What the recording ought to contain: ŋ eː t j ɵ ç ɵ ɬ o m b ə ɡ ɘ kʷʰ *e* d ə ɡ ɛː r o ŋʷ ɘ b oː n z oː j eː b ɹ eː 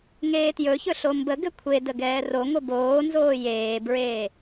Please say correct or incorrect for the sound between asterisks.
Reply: correct